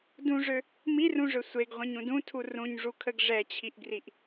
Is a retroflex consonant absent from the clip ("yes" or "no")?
no